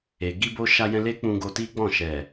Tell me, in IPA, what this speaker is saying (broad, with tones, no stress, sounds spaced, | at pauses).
e˨ ɡ i˧ b o˧ ʃ a˧ j ɛ̃˧ l e˦ k͡p ũ˧ ɡ o˧ t i˦ ɡ͡b ɔ̃˦˨ ʃ ɛ˨